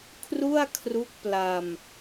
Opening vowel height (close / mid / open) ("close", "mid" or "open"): close